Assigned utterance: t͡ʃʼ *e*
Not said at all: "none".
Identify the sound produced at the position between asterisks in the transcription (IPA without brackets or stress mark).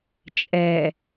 ɛ